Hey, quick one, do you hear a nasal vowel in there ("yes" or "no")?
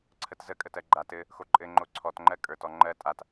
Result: no